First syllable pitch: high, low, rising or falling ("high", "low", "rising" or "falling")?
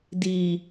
low